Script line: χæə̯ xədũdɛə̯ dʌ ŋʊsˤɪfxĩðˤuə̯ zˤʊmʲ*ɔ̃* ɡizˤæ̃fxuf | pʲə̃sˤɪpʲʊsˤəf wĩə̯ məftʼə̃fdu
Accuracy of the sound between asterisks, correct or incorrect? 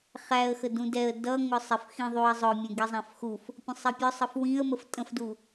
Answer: incorrect